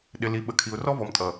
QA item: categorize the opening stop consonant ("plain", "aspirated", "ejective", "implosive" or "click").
implosive